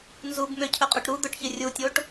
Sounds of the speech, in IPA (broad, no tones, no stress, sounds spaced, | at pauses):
n z u b m ʏ cʰ ɵ qʼ ɵ ʈ ɾ u d̪ ɵ ʈ ç ɪ rʲ u tʲ o ʈ